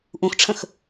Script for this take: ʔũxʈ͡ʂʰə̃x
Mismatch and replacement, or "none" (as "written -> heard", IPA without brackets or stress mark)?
none